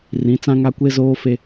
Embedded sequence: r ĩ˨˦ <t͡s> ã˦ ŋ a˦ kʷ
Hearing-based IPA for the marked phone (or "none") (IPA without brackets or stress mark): t͡s